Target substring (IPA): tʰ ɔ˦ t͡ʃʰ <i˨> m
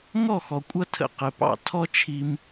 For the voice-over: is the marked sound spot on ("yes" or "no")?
no